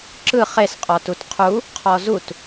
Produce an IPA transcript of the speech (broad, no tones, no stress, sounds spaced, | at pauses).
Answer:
ǁ ɯ χ e s qʼ ɔ t u t qʰ u | qʰ ɔ z u t